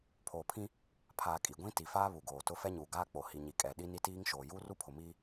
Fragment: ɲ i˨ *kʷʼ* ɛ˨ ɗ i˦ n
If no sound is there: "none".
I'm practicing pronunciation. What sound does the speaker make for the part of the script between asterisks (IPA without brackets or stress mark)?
kʼ